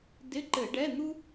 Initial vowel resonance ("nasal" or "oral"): oral